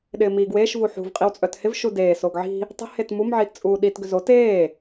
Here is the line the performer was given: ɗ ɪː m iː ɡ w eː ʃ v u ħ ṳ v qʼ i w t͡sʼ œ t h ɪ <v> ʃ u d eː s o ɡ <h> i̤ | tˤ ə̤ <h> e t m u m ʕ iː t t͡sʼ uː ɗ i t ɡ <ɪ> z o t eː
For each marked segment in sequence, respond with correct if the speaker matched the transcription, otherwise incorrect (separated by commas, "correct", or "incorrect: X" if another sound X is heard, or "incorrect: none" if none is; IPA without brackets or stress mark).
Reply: correct, incorrect: ʕ, correct, incorrect: ʏ